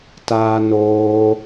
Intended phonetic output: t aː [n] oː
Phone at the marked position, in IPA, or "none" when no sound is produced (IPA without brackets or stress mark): n